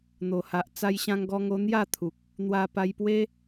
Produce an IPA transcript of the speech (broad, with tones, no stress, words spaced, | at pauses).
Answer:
n̪o˨˩ha˨ʔ t͡sa˧jɕã˧ŋɡɔ˧ŋo˧ n̪ja˥˧t̪ʰu˨k̚ | n̪wa˧pa˧jpwe˦